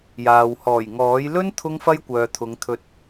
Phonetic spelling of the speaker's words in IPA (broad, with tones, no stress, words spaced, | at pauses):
jaː˨w hɔː˨˩jŋɔː˨˥j lɵ˥n t̪ʰʊ˥ŋfɐ˥jkʷœː˨t̪ʰʊ˨˧ŋ t̪ʰɵ˨t̚